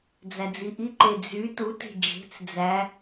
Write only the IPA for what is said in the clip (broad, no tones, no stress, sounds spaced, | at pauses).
d͡z æ d͡z i ʔ i ǃ e d͡z y t u t e̤ d͡ʒ e̤ t͡s d͡z æ